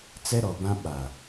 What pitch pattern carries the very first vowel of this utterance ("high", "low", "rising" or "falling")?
high